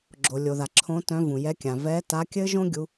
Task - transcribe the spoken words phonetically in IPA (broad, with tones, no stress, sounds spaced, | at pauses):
ɡ͡ǁ o˩ lʲ o˩ ð a˩ ǁʰ õ˨˦ t œ̃˨˦ v ũ˩ j ɛ˨˦ kʲ ã˩ v ɛ˨˦ t a˨˦ kʲ ɘ˦˥ ʒ õ˦˥ ɡʲ u˨˦